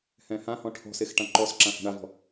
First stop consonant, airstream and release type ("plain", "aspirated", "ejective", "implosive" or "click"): aspirated